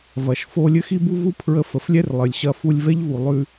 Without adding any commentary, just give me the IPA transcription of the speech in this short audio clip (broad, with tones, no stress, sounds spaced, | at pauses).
v ɐ˨ ʃ f o˧ lʲ ɘ˦ x i˦ b u˦ v u˦ pʰ ɹ ə˧ f ə˨˦ f lʲ ɛ˦ r lˠ ɘ˨ lʲ ɕ ɐ˧ f u˧ lʲ v ɛ˦ ʎ v u˨ lˠ ʉ˧